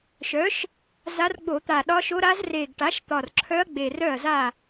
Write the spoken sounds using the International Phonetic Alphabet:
ʃœ˩˥ʃ | za˧˥r ɡ͡bo˧˩˧t̪a˨˩ ɗɒ˧˥ʃo˧˥ɾa˧˥z re˨˩ɡʈa˩˥ʃ t̪ɒ˨˩rǁʰœ˧˥ɐ̯ ɡ͡be˨˩r œ˥˩ɐ̯za˥˩

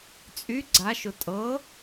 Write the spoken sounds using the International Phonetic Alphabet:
t͡sʼy ɡ͡ǀaʃʊ tʼɤ

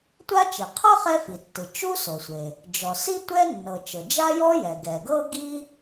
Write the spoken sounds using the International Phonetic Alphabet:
tʷa˥t͡ʃi˩ qʰɤ˥ χɛ˥fi˩tːɯ˩ t͡ʃu˥so˩sʷe˩ | d͡ʒɔ˩si˥ tʷɛ˥nːɤ˩ t͡ʃɤ˩d͡ʒa˥jɔ˥ jɛ˩ɡɛ˩ ɡɤ˥ɡi˥

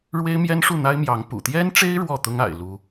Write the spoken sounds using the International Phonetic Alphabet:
ɻwe˦ɪ̯mjɛ˦nʂu˥˨n̪a˦ɪ̯ mjɑ˨˦ŋpṵ˨˩ t̪jɛ˦nʈ͡ʂe˦ɪ̯ ɻwɔ˥˨t̪ʊ˦ŋa̰˨˩ɪ̯ lu˦

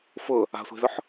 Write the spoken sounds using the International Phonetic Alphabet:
fʊ | a̤sʷe̤zʊħ

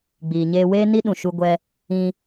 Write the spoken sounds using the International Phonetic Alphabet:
ɡ͡biː˨ɲeː˧weː˦ni˦ ɗũ˨ʃu˧ɡʷɛ˧ | ĩ˧

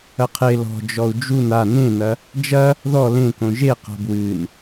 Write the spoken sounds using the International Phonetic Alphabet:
ɐqʰe lɔ̤ d͡ʒɔu̯d͡ʒun a nẽnɐ | d͡ʒɐ | ðɔ lẽkõ ʒe qa̤bwɨn

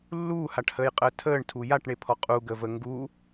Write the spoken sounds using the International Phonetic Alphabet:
lːuːhaʈhəːjqʼəː tʰəːɳtʰu jaʈɳepʰɔ qʼuɡəvə ŋɡu

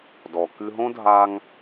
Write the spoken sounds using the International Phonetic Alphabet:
dɔ˩ kɨ˧ɦõ˥ dʱa˧ŋ

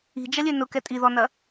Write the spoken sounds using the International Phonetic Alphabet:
i̤d͡ʒɐlʲø nʊkɛ tʼiðɔnɐ

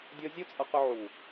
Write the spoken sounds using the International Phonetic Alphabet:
dʲɔ˧ zʲu˦t͡sʼʌ˧ qɵ˧ʕu˨

